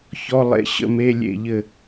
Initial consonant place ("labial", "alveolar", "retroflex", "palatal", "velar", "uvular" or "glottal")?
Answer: palatal